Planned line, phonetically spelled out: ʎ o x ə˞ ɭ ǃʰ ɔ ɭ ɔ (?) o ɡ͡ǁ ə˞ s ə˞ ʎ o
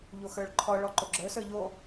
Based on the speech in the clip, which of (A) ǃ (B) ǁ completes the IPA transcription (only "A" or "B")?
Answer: A